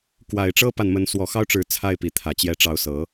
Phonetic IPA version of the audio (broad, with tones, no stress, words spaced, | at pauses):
kwa˨˩ɪ̯ʈ͡ʂɤ˦pa˨nmə˨˦n swɔ˨˩xɑ˦ʊ̯ʈ͡ʂɻ̩˨˦ t͡sʰa˥˨ɪ̯pi˨˦t̪ʰä˨˩ t͡ɕjɛ˨˦ʈ͡ʂɑ˨˦ʊ̯sɤ˨˦